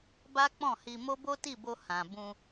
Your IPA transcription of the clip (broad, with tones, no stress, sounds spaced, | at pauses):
b a˦ k͡p ɔ̃˦˨ h i˧ m o˦ b o˦ t i˦˨ b o˧ h ã˨ b ũ˧